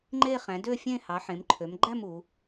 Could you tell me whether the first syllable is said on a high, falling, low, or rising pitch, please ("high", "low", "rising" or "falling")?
falling